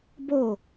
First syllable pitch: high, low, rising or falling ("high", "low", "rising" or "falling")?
falling